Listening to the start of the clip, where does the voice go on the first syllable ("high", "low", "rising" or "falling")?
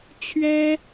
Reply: high